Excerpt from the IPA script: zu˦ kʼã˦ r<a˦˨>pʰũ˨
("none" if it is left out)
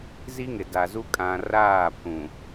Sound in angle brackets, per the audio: aː˦˨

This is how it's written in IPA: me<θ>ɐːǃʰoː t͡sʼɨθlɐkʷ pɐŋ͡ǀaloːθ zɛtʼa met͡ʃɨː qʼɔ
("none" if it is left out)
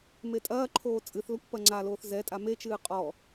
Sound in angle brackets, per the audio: tʼ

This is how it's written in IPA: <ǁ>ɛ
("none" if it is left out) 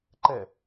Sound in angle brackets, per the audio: ǃ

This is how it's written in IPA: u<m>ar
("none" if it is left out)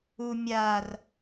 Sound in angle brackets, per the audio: mʲ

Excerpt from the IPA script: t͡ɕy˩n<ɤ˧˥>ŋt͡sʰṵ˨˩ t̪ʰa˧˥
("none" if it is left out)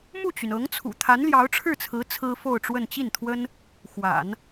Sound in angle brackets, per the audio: ɤ˧˥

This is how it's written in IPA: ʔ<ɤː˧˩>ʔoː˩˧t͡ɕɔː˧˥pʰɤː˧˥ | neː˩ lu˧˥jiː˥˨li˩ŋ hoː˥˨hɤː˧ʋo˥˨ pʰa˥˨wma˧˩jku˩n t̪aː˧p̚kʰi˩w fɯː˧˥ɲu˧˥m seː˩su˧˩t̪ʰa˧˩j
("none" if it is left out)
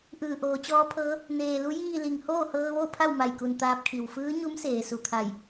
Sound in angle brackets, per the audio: ɯː˧˩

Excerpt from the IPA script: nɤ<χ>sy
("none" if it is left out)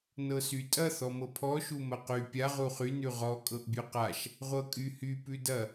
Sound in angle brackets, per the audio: none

